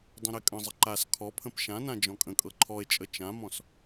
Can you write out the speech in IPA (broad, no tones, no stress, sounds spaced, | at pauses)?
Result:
dˤ ɛ̃ ɾ ɛ kʼ ə̃ zˤ ə ǃ a s kʰ ɔ pʰ ə̃ p ʃ ã n ã d͡ʒ ɔ̃ kʼ ə̃ kʼ ɤ ǃʰ ɔ e̯ t͡ʃʼ ə t͡ʃ ã m ɔ̃ s